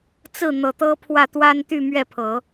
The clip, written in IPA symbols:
t͡s ɹ̩˥˩ n̪ ɤ˨˩ t̪ ɤ˥ pʰ w ä˥˩ t̪ w a˥ n t̪ y˥˧ m ɥ ɛ˥˩ pʰ ɤ˨˩˦

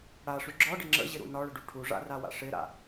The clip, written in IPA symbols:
ɽ a ʂ y ɡ͡ǁ ɒ ɖ ɪ ŋ͡ǁ ə̰ ʑ ɪ ɾ ṵ n ɒ ɭ ə ɖ u ʈʰ u ʐ a̰ r a w a̰ ʂ ɪ ɾ a̰

